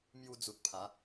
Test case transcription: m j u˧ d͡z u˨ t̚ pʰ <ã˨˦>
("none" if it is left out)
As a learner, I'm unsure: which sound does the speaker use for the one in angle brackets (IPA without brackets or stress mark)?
a˨˦